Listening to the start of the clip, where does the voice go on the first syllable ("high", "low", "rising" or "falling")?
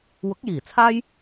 rising